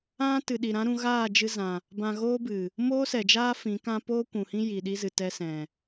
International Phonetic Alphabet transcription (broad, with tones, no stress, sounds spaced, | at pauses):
ã˦ t ɨ˨ ɗ i˨ ɾ ã˦ ɾ ũ˧ ɣ aː˦˨ d͡ʒ ɨ˧ z ã˨ | b ã˧ ɣ oː˦ b ɨ˨ | m oː˦ s ɛ˨ d͡ʒ aː˦ f ĩ˨˦ k ã˦ p oː˦ kʷ ũ˨ h ĩ˦ j i˨ ɗ i˦ z ɨ˨ t ɛ˧ s ɛ̃˨